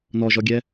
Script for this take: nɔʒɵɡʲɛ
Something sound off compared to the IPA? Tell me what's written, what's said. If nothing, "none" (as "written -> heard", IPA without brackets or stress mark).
ɵ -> ɔ